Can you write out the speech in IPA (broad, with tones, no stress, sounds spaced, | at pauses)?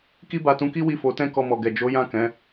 k i˦ b a˧ t ũ˧ k i˦ w i˦˨ f o˨˦ t ɛ̃˦ k ɔ˧ m ɔ˨ ɡ ɛ˨ d͡ʒ o˨˦ j ã˦˨ k ɛ̃˨˦